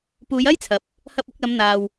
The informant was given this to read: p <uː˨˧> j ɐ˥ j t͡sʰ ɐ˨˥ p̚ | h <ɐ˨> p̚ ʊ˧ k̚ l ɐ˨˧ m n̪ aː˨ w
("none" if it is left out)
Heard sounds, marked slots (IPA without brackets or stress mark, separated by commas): uː˨˧, ɐ˧